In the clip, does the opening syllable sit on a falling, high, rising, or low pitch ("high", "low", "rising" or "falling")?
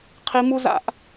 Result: high